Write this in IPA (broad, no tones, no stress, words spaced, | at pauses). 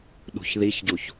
ɗṳçðiçɟuç